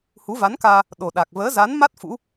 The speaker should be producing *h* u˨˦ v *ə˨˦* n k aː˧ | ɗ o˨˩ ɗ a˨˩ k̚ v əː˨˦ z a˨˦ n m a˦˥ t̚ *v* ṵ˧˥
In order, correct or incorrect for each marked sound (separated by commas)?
correct, incorrect, incorrect